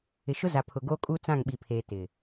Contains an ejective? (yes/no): yes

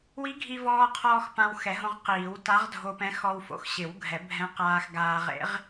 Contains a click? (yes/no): no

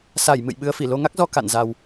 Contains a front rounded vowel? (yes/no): no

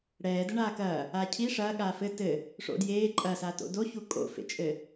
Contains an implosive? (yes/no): yes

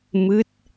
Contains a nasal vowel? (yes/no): no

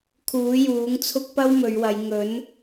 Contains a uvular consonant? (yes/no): no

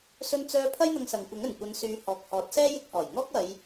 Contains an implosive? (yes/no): no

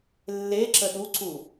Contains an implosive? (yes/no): yes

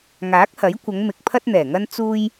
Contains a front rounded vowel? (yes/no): no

